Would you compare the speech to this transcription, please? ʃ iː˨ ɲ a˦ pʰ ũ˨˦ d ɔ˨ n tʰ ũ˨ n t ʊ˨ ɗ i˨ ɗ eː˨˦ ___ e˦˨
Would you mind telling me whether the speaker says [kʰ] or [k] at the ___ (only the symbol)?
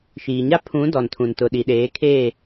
kʰ